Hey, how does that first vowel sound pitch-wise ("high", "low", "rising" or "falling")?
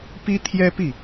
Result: high